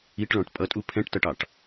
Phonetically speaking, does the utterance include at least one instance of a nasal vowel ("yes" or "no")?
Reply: yes